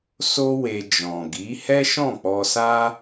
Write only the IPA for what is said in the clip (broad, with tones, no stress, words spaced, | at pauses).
so˦we˧ d͡ʒɔ̃˨ɡi˨˦ hɛ˦ʃɔ̃˦˨ k͡pɔ˧sa˦